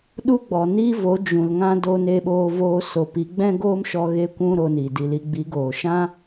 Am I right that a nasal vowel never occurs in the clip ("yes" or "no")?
no